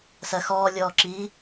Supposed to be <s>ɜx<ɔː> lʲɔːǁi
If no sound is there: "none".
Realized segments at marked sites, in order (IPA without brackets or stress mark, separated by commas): s, ɔː